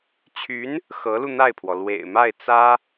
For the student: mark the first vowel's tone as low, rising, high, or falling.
rising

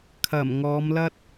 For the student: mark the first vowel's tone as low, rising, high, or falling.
low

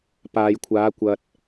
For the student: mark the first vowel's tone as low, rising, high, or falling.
low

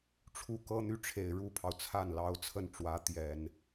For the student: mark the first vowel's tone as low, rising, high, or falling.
falling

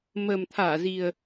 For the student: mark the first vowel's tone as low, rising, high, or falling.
low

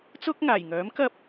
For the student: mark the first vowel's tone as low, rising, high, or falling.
high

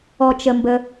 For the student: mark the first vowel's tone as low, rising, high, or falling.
low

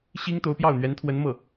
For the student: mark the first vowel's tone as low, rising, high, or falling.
high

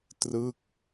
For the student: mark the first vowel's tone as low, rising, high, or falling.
falling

